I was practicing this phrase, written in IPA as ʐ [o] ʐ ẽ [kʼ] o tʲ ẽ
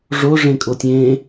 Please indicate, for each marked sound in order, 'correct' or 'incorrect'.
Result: correct, correct

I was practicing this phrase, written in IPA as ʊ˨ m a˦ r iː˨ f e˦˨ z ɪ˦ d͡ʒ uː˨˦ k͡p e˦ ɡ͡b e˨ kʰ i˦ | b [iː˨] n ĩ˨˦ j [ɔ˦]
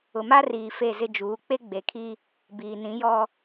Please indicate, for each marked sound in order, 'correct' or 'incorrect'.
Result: correct, correct

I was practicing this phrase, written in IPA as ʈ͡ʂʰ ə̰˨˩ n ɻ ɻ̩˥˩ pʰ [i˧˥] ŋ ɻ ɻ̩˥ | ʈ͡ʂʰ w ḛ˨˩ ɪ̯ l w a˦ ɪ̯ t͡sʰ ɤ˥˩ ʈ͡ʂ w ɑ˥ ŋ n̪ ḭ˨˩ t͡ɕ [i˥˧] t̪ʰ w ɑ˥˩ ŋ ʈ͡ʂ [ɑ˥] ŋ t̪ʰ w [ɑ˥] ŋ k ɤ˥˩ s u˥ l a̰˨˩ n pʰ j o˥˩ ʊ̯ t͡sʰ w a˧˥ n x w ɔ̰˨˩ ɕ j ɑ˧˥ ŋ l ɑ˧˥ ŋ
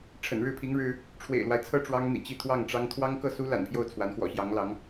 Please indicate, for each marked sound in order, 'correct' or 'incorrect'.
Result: correct, correct, correct, correct

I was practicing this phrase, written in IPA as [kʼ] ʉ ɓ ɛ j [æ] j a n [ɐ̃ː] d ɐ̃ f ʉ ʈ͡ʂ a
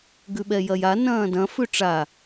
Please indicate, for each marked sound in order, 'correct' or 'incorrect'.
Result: incorrect: ɡ, incorrect: ɐ, correct

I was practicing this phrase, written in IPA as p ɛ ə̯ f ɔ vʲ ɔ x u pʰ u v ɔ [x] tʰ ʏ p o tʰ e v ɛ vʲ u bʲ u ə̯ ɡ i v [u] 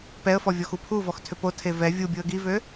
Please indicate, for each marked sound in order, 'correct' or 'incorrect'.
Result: correct, incorrect: ø

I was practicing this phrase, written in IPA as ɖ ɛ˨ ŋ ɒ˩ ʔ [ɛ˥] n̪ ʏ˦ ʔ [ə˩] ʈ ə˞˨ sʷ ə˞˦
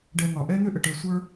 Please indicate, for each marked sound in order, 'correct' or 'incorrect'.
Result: incorrect: ɛ˦, correct

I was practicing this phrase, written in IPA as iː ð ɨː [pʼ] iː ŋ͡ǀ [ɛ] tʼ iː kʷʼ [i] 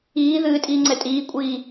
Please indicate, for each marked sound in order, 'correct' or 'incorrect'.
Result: incorrect: tʼ, correct, incorrect: iː

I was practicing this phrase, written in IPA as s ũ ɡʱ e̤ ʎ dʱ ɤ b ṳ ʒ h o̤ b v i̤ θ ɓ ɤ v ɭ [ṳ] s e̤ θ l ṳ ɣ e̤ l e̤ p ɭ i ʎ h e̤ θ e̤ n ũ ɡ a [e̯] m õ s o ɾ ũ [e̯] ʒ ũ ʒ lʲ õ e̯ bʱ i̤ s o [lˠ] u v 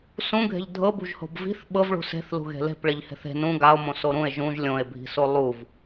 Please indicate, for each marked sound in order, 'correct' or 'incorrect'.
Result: correct, incorrect: o̯, correct, correct

